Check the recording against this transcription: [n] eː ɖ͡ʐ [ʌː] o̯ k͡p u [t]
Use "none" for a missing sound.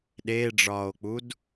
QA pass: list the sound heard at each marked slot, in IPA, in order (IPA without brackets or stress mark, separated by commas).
ɗ, ɒː, d